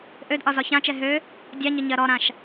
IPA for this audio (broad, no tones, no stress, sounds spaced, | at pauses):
ʔ ø d ʔ ɒ z ɒ ç ã t͡ʃ ɛ ɦ ø | dʲ a ɲ ə ɲ ɜ ɾ ɔ ɾ ã ʃ